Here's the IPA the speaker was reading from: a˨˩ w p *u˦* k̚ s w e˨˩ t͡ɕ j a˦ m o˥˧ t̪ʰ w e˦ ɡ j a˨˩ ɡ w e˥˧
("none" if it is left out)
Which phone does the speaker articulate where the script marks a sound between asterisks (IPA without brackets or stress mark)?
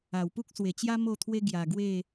u˦